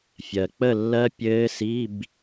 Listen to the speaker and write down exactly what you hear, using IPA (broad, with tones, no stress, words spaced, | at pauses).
fʲɜ˩k͡pə˥˨lːɜ˦˥ pʲɘː˦˥si˧˥˧b